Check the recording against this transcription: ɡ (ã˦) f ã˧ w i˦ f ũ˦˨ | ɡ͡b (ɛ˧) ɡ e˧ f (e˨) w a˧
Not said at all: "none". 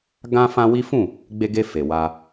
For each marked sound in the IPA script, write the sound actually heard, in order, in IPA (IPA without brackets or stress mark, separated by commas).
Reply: ã˦, e˧, e˨